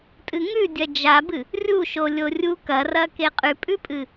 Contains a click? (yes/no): no